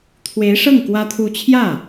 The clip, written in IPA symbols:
t̪ʰ w e˧˥ ɪ̯ ʂ ɤ˥˩ ŋ k w ä˥ t̪ʰ u˥˧ t͡ɕʰ j ä˥˩

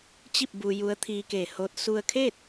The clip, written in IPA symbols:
t͡ɕ i˥˨ p̚ b u˧ j u˧˥ ə̯ t̪ʰ iː˧ k eː˧˩ h oː˧˥ t̚ s u˧ ə̯ kʰ eː˥˨ t̚

